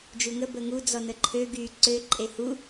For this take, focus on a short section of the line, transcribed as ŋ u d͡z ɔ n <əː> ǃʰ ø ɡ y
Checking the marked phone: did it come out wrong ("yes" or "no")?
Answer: yes